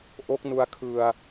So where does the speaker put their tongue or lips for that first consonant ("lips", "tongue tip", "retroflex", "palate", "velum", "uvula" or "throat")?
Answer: throat